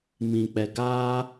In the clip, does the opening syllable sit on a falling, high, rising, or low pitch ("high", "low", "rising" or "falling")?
low